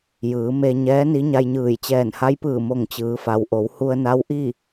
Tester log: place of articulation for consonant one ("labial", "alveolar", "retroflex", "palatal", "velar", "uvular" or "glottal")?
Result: palatal